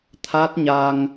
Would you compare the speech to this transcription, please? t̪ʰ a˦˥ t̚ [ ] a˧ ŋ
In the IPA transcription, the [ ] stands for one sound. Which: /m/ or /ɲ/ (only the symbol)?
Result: ɲ